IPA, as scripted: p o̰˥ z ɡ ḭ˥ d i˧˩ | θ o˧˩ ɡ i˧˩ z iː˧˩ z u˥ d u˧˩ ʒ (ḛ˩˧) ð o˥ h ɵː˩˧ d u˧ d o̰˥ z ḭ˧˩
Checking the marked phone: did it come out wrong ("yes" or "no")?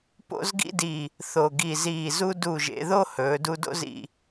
no